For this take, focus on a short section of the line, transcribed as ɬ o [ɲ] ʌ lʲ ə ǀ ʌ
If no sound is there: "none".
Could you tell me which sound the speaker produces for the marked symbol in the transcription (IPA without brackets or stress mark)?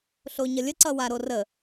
ɲ